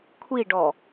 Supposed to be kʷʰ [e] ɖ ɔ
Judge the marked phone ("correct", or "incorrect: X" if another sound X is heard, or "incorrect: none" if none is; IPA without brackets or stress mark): incorrect: i